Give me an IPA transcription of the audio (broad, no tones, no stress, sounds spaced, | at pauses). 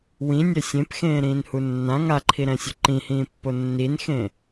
w ĩ nʲ e sʲ ẽ p x ẽː ɾ ĩː n h u nː ã ŋ a ǃʰ i ɾ ɛ̃ sʲ o ǃ ĩ h ĩː pː o nː i n x ẽ